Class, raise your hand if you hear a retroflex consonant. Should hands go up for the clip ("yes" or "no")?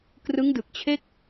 no